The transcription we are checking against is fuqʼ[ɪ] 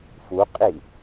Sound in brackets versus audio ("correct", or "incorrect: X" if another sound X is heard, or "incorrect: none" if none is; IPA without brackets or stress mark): incorrect: i